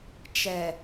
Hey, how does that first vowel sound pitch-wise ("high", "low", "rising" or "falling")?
low